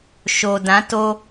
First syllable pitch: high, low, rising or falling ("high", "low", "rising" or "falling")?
low